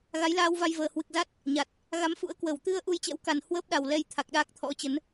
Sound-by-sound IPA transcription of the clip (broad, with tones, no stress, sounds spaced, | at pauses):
ɣ a˨˦ j l aː˧ w v a˧ j v əː˨˩ h w ɨ˨˩ k̚ z a˦˥ t̚ | ɲ a˨˩ t̚ | ɣ a˨˦ m f ṵ˧˥ ə̯ k w ə˧˩ w t̪ ɨ˧ ə̯ ʔ u˧ j t͡ɕ ɛ̰˧˥ w k a˨˩ n h w əː˦˥ p̚ ɗ a˨˩ w l ɛ˧ j t̪ʰ a˨˩ k̚ ɗ aː˦˥ k̚ t̪ʰ ɔ̰˧˥ t͡ɕ ə˨˦ n